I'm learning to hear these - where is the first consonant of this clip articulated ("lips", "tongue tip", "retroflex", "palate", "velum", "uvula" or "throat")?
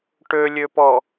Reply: retroflex